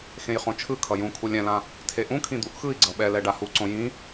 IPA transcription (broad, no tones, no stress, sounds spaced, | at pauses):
x ẽ j χ õ t͡ʃʰ ɯ kʰ ʌ j ũ kʰ u lʲ ɛ̃ l ã | tʰ e ʔ ũ kʰ ĩ d̪ u ʔ x ɯ i̯ ɡ͡ǀ ʌ ɓ ɛ l ɛ ɖ a h u ǀ õ j ĩ